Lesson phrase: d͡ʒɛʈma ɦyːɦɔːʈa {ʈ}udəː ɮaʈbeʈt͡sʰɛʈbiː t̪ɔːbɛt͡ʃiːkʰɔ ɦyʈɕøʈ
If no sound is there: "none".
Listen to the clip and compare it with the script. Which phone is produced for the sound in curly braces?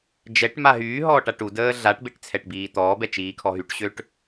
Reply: ʈ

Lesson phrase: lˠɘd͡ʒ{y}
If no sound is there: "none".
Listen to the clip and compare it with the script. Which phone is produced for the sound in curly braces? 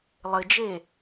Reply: e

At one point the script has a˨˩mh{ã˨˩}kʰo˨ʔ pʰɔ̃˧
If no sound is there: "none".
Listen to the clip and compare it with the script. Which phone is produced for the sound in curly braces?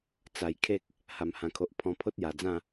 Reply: ã˨˩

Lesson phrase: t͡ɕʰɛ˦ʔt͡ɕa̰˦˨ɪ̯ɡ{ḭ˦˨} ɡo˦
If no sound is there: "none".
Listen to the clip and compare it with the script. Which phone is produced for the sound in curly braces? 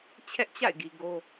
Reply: i˨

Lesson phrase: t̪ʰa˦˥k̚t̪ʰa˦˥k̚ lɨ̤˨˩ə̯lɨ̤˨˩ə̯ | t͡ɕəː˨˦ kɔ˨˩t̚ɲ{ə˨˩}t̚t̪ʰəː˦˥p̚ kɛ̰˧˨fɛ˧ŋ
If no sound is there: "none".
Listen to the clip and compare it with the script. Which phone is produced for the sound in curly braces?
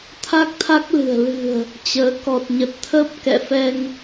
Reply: ə˨˩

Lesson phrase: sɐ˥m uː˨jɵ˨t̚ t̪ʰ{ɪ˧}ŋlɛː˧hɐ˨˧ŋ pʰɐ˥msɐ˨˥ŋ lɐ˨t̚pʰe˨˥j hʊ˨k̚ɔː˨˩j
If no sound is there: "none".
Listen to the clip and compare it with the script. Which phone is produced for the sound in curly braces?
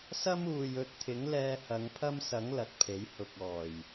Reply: ɪ˨˥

